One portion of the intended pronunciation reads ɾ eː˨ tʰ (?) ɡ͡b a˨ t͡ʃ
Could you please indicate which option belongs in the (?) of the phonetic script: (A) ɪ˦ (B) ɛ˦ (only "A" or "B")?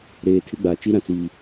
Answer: A